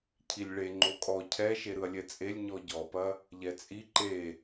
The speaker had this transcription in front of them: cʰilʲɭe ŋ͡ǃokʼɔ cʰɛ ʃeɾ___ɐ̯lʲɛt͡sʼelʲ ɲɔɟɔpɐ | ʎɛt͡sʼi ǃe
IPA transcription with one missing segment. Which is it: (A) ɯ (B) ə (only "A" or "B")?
A